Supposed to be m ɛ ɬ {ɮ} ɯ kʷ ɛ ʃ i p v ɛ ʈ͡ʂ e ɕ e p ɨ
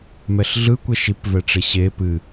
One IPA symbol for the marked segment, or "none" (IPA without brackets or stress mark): ɮ